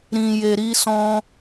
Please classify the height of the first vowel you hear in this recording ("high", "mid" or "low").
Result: high